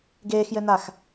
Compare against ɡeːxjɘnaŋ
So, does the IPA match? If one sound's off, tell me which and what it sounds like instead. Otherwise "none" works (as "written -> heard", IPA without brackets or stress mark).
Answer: ŋ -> x